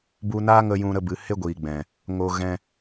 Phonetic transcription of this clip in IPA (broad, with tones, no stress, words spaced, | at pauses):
bu˧naː˦ŋə˧ jũ˧ ɾə˧bɨ˨ he˦ɡʷiː˨ɡ͡bɛ̃˨ | ŋo˨ ɣɛ̃˧